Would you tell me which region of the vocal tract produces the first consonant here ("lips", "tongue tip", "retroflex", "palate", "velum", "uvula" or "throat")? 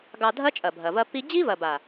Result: velum